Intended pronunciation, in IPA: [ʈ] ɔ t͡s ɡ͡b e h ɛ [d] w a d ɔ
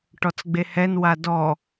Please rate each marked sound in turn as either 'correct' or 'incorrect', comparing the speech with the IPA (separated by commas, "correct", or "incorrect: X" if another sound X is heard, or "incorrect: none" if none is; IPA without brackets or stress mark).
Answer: correct, incorrect: n